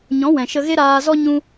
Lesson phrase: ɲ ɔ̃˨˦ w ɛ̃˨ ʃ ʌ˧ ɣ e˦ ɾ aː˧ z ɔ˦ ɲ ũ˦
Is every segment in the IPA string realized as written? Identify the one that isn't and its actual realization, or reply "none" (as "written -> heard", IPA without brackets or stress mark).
ʌ˧ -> ə˧